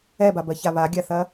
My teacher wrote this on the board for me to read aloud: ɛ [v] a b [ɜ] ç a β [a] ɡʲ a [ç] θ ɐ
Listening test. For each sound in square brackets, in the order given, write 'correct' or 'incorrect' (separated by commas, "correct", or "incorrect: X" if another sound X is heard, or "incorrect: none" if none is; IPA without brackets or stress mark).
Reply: incorrect: b, correct, correct, incorrect: none